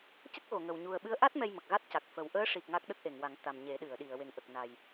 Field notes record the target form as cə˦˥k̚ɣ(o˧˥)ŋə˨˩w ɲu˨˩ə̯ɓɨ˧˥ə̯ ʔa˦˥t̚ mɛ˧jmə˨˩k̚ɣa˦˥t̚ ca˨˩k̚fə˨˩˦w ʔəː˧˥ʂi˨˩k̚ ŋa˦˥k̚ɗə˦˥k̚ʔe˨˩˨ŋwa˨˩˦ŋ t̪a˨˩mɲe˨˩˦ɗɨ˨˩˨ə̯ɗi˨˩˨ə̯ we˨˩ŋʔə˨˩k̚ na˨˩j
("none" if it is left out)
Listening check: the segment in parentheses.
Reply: o˨˩˨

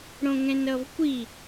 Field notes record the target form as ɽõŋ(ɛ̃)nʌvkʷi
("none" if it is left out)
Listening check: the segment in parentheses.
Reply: ɛ̃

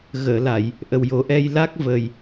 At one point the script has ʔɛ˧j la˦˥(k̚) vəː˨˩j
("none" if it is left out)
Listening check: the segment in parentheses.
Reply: k̚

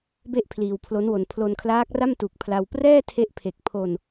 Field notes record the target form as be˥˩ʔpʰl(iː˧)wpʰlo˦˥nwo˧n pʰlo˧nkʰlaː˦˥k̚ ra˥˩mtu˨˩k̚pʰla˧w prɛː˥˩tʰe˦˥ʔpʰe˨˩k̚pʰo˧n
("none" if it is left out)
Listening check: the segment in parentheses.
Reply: iː˧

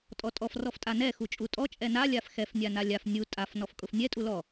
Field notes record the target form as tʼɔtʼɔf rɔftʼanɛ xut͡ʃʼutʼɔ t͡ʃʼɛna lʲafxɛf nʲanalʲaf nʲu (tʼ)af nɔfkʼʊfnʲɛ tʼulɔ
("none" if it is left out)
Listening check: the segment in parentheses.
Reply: tʼ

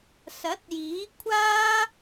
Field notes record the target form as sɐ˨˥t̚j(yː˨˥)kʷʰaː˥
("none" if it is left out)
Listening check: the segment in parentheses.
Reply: iː˨˥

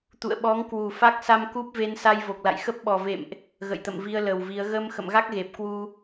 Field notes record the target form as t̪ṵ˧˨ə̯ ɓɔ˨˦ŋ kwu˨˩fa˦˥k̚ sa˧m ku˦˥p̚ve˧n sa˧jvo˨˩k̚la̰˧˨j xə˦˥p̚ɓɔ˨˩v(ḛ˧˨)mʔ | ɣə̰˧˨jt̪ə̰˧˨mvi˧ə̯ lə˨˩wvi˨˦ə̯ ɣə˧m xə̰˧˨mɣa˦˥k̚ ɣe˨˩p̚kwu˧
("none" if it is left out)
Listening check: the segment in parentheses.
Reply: ḛ˧˨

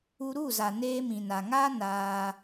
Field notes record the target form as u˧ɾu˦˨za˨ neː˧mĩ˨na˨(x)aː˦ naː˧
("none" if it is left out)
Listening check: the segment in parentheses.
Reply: ŋ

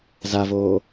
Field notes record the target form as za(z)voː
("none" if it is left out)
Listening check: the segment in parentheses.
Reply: none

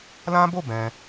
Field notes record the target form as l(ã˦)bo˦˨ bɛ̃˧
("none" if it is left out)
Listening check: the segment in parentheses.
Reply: ã˦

